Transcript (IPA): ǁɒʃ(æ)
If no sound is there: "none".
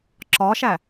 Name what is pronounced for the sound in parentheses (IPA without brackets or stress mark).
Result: æ